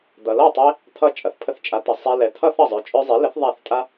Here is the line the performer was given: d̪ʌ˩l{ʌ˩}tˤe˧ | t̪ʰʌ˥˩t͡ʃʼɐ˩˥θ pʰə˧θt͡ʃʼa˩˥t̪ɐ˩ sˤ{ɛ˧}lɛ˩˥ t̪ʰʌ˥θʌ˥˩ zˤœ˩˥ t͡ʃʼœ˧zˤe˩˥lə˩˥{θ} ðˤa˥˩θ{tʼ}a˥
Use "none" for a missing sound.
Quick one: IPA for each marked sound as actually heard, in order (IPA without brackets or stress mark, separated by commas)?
ʌ˥˩, ɛ˧, θ, tʼ